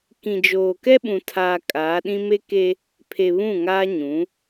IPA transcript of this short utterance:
k ĩ˨ d͡ʒ oː˨ k ɛ˦ ɓ ũ˨ tʰ aː˨ kʼ aː˨˦ ɗ ĩ˦ m e˦ k e˦ | pʰ e˨ β ũ˦˨ ŋ aː˦ ɲ ũ˨˦

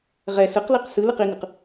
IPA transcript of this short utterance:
ʁ ɛ s ɯ q l i q s ɯ l ɯ q i ŋ ɯ q

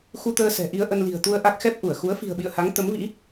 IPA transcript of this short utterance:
x u˧ t̪ əː˧ s ɛ̤˨˩ ʔ i˧ ə̯ ʔ ə˧ n l i̤˨˩ ə̯ t̪ u˧ ə̯ ʔ a˦˥ k̚ x ɛ˦˥ p̚ ʔ u˧˩ ə̯ x u˨˦ ə̯ f i̤˨˩ ə̯ ɓ ḭ˧˨ ə̯ h a˨˦ ŋ t̪ ə˨˦ m v ḭ˧˥

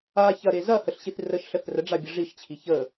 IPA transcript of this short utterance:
a ç ɐ ɾ e z ɐ h ə ɬ ɕ i θ r ə ʃ ɬ ə θ r ə ɖ͡ʐ a bʲ ə ʐ i ʃ t͡ɕʰ i ç ə

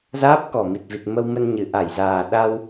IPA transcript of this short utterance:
z aː˦˥ p̚ k ɔ˨˩ m i˨˩ t̚ v i˨˩ t̚ m ə˧ w m ə˧ n ɲ ɨ˨˩ ʔ a˧˩ j z aː˨˩ ɗ a˧ w

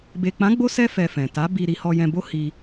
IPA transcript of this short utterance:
b e˨ k͡p ã˨˦ ɡ͡b o˦ s ɛ˦ f ɛ˧ f ɛ̃˨ t a˨˦ b i˧ ɾ i˧ h ɔ˧ j ɛ̃˧ b o˦ h i˧

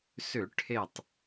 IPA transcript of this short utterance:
s ʏ˧˩˧ ʈʰ e˧˩ tˤ

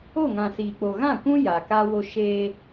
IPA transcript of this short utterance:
o˦˨ ŋ ã˨ s iː˨ k͡p o˨ ɣ ã˦˨ kʷ ũ˦ j a˨ k a˦ w o˦ ʃ eː˦

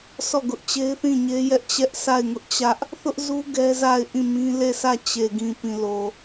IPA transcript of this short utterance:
sʰ ɔ˦˨ ɡ ʊ˦ ʔ t͡ɕ e˦ ɪ̯ θ ĩ˦˨ ɲ e˦ j ɛ˦ ʔ t͡ɕ ɛ˦ ʔ sʰ a˦˨ ɪ̯ ŋ ʊ˦ ʔ t͡ɕ ä˦ ʔ | θ ʊ˦ ʔ z u˦ ɡ ɛ˦ z a˦˨ ɪ̯ ʔ ĩ˦˨ m ĩ˦ l e˦˨ sʰ ä˦˨ t͡ɕ e˨ ɡ ĩ˨ p ĩ˨ l o˨

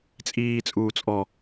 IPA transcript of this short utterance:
t͡sʼ iː t͡sʼ uː t͡sʼ ɔ

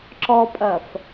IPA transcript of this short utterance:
ǁ ɔ pʼ ɐ f

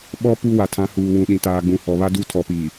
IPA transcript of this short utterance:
ɓ ɔ˦ p u˦ w a˨ tʰ ã˨˦ h uː˨ w ũ˨ ɗ ĩ˨ t aː˨ ɡ͡b ũ˨ h ɔ˨ β a˦ d u˦˨ tʰ ɔ˨ p iː˨

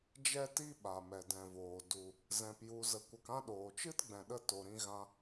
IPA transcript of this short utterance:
d͡ʒ ɛ˦ t i˦ ɓ a˨ m ɛ˨ d ɛ̃˨ v oː˨ d u˨ | z ɛ̃˧ p j u˧ z ə˧ kʷ ə˧ k ã˦ ɗ oː˨ t͡ʃ ɨ˦ t ɡ͡b ɛ̃˨ ɗ ə˧ t o˨ ɾ ĩ˧ ɣ ã˧

